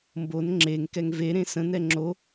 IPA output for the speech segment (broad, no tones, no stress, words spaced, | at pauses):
mbon ŋ͡ǁeŋ kɛŋveɾẽ sə̃nɛ ŋ͡ǁo